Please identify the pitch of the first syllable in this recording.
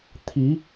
rising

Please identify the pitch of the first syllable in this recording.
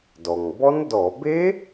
low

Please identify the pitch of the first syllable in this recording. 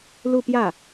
falling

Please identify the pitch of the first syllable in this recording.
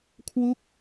falling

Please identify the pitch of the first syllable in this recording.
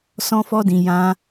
high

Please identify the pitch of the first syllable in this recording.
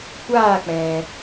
falling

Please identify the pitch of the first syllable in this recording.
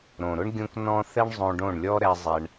low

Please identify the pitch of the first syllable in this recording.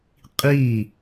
falling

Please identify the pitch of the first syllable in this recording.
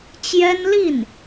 high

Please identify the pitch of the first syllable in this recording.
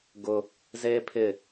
high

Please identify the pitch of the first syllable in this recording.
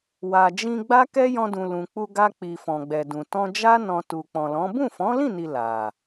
low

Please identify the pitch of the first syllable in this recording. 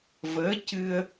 rising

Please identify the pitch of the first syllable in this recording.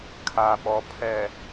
low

